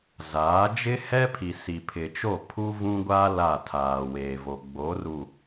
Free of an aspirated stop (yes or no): no